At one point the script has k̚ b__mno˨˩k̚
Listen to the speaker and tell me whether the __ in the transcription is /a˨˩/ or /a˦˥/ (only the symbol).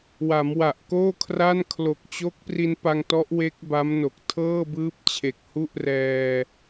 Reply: a˦˥